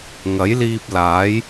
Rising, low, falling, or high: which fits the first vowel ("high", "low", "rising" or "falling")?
rising